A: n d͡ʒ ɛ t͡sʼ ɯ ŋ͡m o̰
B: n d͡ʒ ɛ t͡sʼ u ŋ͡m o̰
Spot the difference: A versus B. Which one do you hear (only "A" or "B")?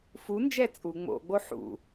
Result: B